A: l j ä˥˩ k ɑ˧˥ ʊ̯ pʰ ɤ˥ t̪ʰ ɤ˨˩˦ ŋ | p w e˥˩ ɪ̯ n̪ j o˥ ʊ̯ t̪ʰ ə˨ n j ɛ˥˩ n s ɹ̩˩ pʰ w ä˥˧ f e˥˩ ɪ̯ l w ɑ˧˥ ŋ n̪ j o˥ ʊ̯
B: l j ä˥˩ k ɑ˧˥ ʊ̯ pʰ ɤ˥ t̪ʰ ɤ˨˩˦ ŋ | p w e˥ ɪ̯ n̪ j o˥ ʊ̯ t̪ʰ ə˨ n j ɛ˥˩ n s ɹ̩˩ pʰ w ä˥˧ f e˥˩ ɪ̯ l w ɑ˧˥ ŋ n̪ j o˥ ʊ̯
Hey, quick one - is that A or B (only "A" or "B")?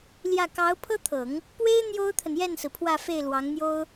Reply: B